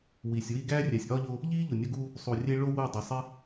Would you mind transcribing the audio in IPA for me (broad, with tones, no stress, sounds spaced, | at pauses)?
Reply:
w i˨ sʲ w i˦ ɡ æː˦ rʲ æ˨ sʲ ʔ ɒ˦ ʎ o˦ | ʎ iː˦ ʎ o˨ nʲ ɒ˦ ɡ uː˦ | sˤ u˨ rʲ e˦ ɭ o˦ w o˦˨ dˤ i˨ sˤ i˦